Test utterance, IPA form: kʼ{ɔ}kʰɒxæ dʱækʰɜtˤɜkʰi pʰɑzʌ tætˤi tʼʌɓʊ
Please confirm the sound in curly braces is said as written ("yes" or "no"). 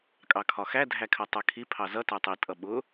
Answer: no